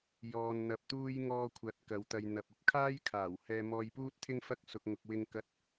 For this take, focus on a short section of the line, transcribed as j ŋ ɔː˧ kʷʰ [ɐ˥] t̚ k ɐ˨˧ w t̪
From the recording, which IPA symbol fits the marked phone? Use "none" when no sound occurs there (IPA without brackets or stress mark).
ɐ˨˥